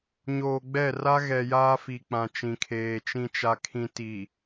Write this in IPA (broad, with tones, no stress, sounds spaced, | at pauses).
ɲ oː˨ ɡ͡b ɛ˦˨ r a˦ ɣ ɛ˨ j aː˦ f i˨ k͡p ã˨ t͡ʃ ĩ˨ kʰ eː˨ t͡ʃ ĩ˨ t͡ʃ a˨ kʰ ĩ˨ t i˨